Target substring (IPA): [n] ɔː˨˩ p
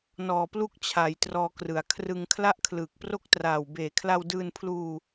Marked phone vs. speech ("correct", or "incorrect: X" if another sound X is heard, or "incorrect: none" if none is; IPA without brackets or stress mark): correct